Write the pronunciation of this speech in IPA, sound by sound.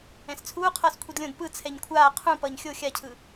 ɛ̃ s t͡sʰ uː qʰ ʌː s kʷʰ i d lʲ õ d p ɯ t͡sʰ ɛ ɲ kʷʰ aː qʰ ũ p ʌː ɲ xʲ o xʲ a cʰ ɯ

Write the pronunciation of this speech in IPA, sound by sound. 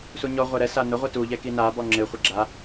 s u ɲ ɔ ʁʷ e ɾ ɛ s a n ʊ ʁʷ e t u ʎ ɛ k i n a b ɔ ŋ͡ǁ ɪ χʷ ɪ ɡ͡ǁ a

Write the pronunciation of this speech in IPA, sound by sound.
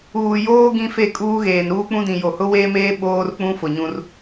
uː˨ j oː˦ ɡ ĩ˦ f e˦˨ kʼ uː˦ ɣ eː˨ n ɾ uː˦ k͡p ũ˦ d ĩ˨ j o˨ h ʊ˦ w eː˦ m eː˦ ɓ oː˦ r k͡p ũ˦ f ʊ˨ ɲ ũ˦ r

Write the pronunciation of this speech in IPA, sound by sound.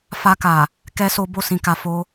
f a˧ k a˨ | k ɛ˦ s o˦ b o˦˨ s ĩ˧ k a˧ f o˦

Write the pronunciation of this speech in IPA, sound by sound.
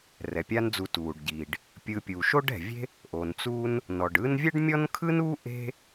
r ɛ˩ pʲ a˦ n d͡z u˨ t uː˩ ɖ ɟ iː˩ ɖ | pʲ ɯ˨ pʲ uː˩ ʃ o˥ ɖ ɛ̤˩ vʲ e̤˥ | ʔ o˩ n t͡s uː˦ n | n ɔ˩ ɖ ɯː˦ n vʲ ɛ˥ ɖ mʲ ɔ˥ n kʰ ɯ˥ n uː˥ ʔ e̤˥

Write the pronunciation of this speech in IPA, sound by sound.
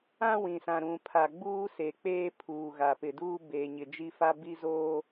ã˦ w ĩ˨ s ã˨ ɾ ũ˨ pʰ a˨ ɡ͡b uː˦ s e˨ k͡p eː˦ pʰ uː˨ ɣ a˨ p ɪ˨ d uː˦ b eː˨ ɲ ɪ˨ d͡ʒ i˦ f a˦ b i˦ z oː˦

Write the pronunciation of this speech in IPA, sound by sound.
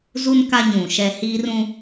z u˦ n k a˦ ɲ ũ˨ ʃ ɛ˦ h iː˦ r ũ˦

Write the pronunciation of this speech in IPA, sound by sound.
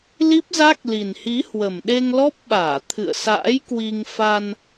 l i˦˥ p̚ z a˦˥ k̚ l i˨˩ n h i˨˦ h w ə˨˩ m ɗ e˧ ŋ l ɔ˦˥ p̚ ɓ aː˧˩ t̪ʰ ɨ̰˧˨ ə̯ s a̰ː˧˥ j k w i˧ ŋ f a˧ n

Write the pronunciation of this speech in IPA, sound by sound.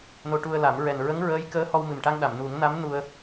n o˧ ʈ u˧ ə̯ l a˨˩˦ m ɹ ɛ˨˩ n ɹ ə˧˥ ŋ ɹ əː˧˥ j k əː˧˥ h ɔ˧ w m ɨ˨˩ m ʈ a˧ ŋ ɗ a˨˩˨ m n u˨˩˦ ŋ n a˧˥ m n u˧ ə̯

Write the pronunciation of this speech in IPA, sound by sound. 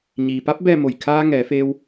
ɲ iː˩ p a˧˥ p̚ b ɛː˥˨ m o˧˩ j kʰ aː˧ ŋ ɛː˩˧ f eː˧ w

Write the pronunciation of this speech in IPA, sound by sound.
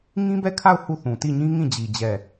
ŋ ĩ˦ b ɛ˦˨ kʰ a˦˨ ʊ̯ h u˦˨ θ ũ˨ t i˦˨ ɲ ĩ˦ ŋ ĩ˦˨ d͡ʑ i˨ d͡ʑ ɛ˦˨

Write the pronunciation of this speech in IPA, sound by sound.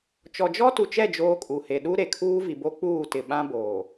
t͡ʃ ɔ˨ d͡ʒ ɔ˦ t u˨ t͡ʃ ɛ˦˨ d͡ʒ oː˦ kʼ u˨ h e˨ ɗ u˦ ɾ e˨ kʰ uː˦ v i˨ b o˦ k͡p uː˦˨ t ɪ˨ ɓ ã˦ b oː˨

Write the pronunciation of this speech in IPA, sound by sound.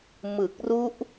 m ɯ˨˩ k̚ r u˦˥ ʔ

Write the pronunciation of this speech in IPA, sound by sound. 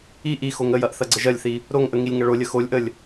i ʔ i x o ŋ ə j ɐ ʔ θ ɐ ɡ͡ǀ ə ʒ ɐ lʲ θ i | ɾ o ŋ ʔ ə ŋ i lʲ ŋ ɐ ɭ o lʲ ə x o lʲ ʔ ə lʲ

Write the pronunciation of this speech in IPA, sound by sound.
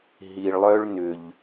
ɦ i˨ ɭ lˠ œ˥ ɭ n ʏ˨ ʎ

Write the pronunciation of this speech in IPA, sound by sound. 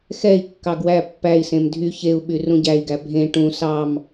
x ɛ i̯ kː ɑ ɡ w æ pː æ i̯ s ẽ m dʱ y ç e u̯ ɓ y r ũ ɟ æ i̯ ɡ æ bʱ ẽ ʈ ũ s ɑ m

